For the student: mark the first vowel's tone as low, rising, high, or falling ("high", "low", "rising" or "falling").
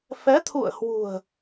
rising